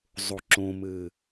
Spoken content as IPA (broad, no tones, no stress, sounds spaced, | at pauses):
zˤ o ǁ õ m ɘ